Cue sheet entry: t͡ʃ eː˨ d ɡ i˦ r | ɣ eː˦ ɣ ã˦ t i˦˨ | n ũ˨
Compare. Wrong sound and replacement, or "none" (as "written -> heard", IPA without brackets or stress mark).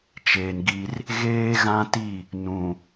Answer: d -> n